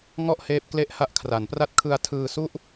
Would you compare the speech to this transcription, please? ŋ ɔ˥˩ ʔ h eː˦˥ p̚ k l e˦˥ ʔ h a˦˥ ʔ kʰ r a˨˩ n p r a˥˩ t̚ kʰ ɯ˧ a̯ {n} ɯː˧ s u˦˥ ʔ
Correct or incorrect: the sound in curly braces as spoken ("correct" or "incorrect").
incorrect